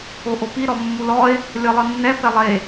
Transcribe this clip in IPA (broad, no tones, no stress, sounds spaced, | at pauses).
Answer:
o ʔ o p i ɾ ɔ mː u l ɔ e̯ | lʲ ɔ lˠ ɯ nː ɛ p ɛ lˠ e